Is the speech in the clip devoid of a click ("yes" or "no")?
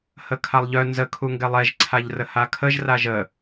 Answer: no